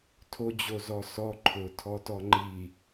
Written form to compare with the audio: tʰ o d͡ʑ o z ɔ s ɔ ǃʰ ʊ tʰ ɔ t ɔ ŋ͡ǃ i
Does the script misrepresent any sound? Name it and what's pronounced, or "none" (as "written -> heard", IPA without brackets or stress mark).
none